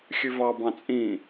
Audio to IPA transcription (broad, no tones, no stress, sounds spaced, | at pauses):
xʲ ʉ v ɑ b ɑ̃ t͡sʼ ĩ